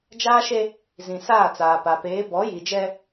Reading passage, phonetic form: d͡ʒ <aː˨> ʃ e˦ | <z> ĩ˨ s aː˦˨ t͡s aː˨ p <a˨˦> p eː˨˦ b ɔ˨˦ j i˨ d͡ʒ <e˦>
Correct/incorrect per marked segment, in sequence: incorrect: aː˦, correct, incorrect: a˨, incorrect: ɛ˦

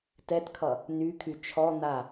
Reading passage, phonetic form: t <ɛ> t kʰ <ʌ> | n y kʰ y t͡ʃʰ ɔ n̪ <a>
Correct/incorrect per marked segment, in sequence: correct, correct, correct

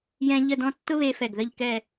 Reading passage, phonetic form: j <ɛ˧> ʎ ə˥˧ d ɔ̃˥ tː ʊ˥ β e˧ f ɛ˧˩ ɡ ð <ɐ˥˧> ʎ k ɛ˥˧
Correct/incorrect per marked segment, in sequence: incorrect: ɛ̃˧, incorrect: ə˥˧

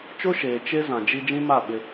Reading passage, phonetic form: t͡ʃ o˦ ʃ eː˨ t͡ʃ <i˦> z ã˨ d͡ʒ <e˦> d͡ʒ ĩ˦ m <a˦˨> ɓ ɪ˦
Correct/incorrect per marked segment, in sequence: incorrect: e˦, incorrect: i˦, correct

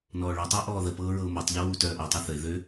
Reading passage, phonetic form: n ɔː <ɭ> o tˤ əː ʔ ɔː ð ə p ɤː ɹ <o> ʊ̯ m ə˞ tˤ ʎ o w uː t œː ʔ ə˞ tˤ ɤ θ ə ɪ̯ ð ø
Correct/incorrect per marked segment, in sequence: correct, incorrect: ɤ

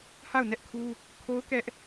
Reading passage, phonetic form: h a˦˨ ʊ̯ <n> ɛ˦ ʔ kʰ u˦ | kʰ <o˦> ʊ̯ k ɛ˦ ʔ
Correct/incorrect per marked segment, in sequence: correct, correct

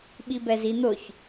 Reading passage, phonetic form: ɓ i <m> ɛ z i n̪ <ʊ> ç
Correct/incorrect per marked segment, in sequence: incorrect: b, correct

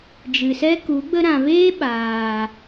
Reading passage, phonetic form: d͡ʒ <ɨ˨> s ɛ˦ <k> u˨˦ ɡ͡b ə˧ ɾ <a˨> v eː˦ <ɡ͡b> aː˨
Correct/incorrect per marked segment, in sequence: correct, correct, incorrect: ã˨, incorrect: ɓ

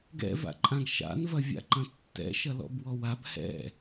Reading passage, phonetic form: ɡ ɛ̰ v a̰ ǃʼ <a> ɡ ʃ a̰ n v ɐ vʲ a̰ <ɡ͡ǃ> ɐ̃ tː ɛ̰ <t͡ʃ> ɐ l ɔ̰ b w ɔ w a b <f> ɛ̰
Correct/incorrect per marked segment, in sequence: incorrect: ã, incorrect: ǃ, incorrect: ʃ, incorrect: h

